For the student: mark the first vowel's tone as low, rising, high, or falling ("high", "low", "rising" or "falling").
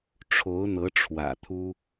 rising